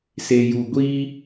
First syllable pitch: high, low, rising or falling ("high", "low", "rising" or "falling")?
low